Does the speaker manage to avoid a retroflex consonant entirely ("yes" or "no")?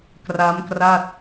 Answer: yes